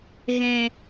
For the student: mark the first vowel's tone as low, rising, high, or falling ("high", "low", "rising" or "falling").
low